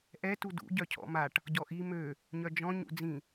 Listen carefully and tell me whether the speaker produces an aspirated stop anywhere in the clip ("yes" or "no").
yes